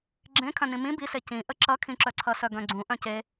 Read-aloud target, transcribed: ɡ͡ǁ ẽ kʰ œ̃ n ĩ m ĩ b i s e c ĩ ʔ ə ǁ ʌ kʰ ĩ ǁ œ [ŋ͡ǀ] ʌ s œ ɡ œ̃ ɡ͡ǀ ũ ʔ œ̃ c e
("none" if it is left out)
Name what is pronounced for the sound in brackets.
ǀʰ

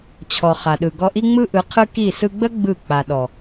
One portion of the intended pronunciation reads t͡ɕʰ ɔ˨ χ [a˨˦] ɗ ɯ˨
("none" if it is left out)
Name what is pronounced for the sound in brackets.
a˨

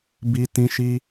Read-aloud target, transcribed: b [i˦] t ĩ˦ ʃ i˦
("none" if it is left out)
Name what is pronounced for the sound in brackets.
i˦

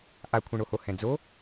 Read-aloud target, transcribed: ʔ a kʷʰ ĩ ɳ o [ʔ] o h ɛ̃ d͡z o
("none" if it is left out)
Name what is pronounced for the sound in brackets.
h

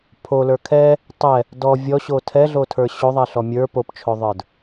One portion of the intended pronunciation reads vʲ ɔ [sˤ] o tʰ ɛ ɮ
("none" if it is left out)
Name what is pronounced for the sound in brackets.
ɕ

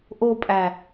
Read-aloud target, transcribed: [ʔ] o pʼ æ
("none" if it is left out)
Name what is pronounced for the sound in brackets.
ʔ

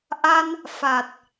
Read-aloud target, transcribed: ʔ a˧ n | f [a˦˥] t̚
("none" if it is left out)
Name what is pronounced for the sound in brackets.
a˨˩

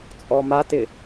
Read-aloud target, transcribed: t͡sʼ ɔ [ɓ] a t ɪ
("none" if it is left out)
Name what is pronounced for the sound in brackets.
m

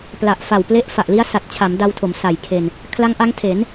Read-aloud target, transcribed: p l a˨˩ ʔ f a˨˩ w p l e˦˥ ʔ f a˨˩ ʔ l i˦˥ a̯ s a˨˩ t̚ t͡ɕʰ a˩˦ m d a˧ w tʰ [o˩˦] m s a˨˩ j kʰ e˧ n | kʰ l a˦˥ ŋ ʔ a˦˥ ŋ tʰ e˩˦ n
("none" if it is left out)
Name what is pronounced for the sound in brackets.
o˩˦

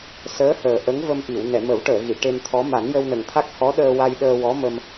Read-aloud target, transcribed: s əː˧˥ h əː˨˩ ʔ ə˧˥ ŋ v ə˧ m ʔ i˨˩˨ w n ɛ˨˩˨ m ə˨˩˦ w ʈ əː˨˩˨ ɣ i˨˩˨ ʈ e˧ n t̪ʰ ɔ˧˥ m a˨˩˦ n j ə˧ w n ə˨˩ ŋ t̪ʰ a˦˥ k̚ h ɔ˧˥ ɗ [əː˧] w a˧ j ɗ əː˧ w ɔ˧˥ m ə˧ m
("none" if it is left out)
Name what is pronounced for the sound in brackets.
əː˧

